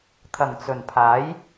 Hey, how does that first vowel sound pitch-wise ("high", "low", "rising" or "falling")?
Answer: low